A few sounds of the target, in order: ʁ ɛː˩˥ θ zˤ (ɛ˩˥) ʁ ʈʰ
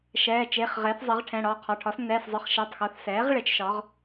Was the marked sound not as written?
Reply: no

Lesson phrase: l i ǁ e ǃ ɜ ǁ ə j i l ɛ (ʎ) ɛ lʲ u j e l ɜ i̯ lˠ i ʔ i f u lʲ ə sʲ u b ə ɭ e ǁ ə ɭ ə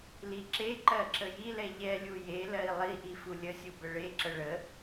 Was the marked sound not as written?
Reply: no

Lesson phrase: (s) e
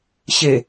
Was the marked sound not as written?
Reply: yes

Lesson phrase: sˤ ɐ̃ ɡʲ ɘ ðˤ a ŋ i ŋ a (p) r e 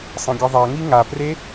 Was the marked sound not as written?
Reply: no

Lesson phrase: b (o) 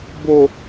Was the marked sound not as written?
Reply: no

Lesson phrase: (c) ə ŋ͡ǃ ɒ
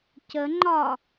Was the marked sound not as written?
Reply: no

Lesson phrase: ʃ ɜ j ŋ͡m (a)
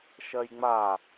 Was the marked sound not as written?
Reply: no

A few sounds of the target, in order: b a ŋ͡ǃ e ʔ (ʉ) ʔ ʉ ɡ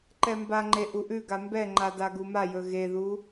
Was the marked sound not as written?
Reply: yes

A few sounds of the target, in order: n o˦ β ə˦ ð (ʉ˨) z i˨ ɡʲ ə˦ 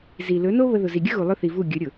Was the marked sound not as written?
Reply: yes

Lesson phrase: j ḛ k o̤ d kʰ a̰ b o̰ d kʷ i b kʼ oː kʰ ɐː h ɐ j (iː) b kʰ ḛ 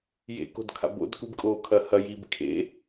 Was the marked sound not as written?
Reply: no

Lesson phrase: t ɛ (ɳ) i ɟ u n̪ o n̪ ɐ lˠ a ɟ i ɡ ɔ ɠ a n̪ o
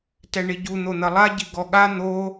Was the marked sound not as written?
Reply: no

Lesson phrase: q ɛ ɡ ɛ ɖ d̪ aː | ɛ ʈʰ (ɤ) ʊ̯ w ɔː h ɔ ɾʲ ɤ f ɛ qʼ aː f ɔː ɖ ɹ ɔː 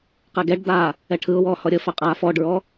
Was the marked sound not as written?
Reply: yes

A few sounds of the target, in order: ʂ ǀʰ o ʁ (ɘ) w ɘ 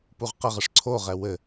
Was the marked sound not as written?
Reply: yes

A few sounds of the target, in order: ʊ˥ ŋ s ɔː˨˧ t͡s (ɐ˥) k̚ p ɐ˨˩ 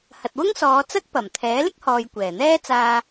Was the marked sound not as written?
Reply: no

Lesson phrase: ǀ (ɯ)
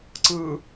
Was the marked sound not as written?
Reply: no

